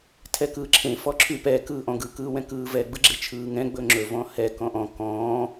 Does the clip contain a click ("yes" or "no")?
yes